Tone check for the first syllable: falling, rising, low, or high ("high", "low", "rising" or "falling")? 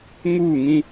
falling